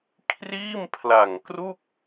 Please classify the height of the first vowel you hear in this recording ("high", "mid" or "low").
high